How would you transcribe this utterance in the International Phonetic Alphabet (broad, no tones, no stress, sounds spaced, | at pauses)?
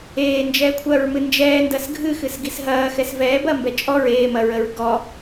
eː n d͡ʒ ɛː kʷʰ ɐː ɹ m ɨ n d͡ʒ ɛː n d ɐ s ɡʱ ɨ x ɨ s ɡ i s ɦ ɐː x ɛ s v ɛː b ɐ m b ɛ t͡ʃʼ ɔ ɹ eː m ɐ ɹ ə ɹ ɡ ɔ